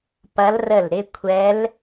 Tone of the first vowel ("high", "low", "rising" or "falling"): rising